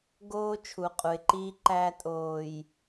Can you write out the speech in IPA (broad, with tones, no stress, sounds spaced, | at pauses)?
ɡ oː˦ t͡ʃʰ u˨ qʼ u˨ ɪ̯ ǃ iː˦ ǃ æː˦ tʼ oː˨ j